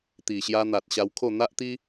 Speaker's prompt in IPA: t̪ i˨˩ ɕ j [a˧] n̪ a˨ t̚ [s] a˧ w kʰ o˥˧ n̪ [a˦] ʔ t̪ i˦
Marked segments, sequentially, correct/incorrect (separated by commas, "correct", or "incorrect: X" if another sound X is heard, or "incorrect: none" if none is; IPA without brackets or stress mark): correct, incorrect: ɕ, correct